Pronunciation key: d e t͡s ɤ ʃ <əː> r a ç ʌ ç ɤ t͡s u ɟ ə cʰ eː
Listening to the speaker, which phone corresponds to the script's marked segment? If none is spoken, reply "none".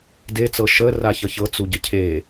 əː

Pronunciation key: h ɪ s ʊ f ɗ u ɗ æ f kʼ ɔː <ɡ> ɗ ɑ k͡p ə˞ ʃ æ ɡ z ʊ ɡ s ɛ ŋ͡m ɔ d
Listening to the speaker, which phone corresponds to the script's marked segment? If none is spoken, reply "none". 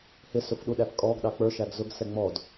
ɡ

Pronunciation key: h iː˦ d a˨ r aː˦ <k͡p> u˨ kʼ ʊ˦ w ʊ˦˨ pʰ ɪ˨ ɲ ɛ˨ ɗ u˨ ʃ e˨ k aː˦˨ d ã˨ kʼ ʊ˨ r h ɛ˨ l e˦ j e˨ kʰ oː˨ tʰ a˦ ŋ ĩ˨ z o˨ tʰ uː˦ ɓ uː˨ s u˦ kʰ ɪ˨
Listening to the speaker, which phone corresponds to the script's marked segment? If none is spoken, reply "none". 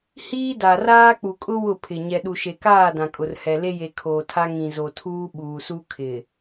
k͡p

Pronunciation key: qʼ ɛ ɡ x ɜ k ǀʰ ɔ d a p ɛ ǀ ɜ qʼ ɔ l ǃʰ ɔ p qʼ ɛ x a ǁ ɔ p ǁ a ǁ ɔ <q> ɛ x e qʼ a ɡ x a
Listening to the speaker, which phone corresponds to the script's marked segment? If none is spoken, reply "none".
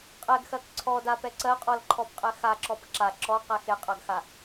q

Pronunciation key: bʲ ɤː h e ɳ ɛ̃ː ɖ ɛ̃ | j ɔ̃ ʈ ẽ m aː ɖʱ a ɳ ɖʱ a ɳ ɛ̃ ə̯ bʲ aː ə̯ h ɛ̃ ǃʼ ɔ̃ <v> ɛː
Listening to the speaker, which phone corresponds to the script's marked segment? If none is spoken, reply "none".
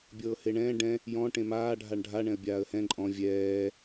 vʲ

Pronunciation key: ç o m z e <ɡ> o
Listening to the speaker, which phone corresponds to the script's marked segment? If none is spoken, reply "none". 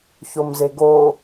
ɡ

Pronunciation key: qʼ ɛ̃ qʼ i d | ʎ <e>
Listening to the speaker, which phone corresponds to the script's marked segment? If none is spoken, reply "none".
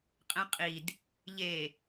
e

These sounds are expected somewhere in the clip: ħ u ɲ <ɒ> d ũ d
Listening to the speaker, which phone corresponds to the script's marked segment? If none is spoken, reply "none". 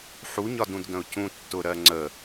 ɒ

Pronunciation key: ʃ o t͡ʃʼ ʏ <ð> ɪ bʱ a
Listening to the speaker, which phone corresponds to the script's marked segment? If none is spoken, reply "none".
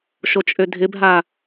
dʱ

